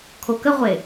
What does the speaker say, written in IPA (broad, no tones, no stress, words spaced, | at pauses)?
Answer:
kʰokəʁʷe